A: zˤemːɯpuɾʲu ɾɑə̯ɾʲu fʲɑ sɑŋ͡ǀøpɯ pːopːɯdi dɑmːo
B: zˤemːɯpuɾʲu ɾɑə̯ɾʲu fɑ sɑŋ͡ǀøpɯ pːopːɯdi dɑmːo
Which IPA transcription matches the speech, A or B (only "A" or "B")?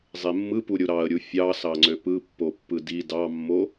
A